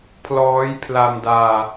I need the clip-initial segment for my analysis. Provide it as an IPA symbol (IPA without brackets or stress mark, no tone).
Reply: pʰ